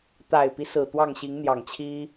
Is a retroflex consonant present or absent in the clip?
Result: absent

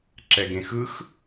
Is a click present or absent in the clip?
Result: present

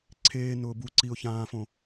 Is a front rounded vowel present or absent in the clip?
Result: absent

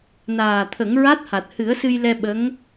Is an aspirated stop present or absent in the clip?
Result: present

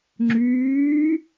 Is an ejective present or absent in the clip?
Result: absent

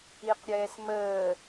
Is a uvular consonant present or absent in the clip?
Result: present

